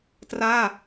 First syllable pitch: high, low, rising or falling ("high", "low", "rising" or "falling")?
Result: falling